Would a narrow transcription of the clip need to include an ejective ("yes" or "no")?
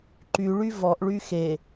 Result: no